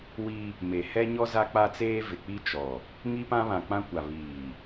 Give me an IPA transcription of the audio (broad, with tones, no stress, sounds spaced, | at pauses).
w i˦ | m e˨ h ɛ˦ ɲ ɔ˦ z a˦ k͡p a˦ t͡s eː˦ v ɪ˨ k͡p i˦ t͡ʃ ɔ˨ | ŋ i˦ p ã˦ β ã˨ k͡p ã˦ kʷ a˨ β iː˨